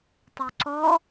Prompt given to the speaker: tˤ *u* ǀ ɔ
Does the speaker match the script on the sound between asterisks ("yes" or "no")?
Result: yes